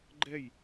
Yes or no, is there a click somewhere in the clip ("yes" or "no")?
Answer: yes